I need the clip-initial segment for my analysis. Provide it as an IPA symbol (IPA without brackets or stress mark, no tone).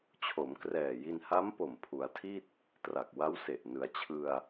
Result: t͡ɕʰ